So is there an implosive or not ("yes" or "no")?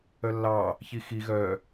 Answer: no